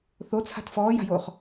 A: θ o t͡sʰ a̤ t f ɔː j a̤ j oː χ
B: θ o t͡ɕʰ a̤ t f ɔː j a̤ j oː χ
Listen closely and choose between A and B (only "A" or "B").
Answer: A